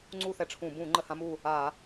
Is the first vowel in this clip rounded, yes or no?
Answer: yes